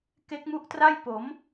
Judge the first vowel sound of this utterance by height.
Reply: mid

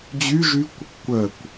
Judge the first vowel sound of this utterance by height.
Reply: high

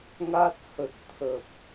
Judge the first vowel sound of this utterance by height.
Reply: low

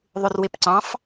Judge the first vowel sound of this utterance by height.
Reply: high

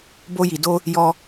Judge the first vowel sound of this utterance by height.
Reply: mid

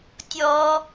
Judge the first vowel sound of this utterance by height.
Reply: mid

